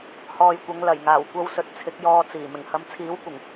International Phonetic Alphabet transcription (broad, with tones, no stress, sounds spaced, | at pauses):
h ɔː˨ j kʷ ɐ˨˧ ŋ l ɐ˨˩ j ŋ aː˨˩ w kʷ ɐ˧ w s ɵ˨ t̚ t͡sʰ ɪ˨˥ k̚ j ɔː˧ t͡s iː˨˩ m ɪ˨˩ ŋ h ɐ˨˧ m t͡sʰ iː˨˥ w kʷ ɪ˨˩ ŋ